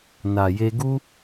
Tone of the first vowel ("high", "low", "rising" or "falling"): low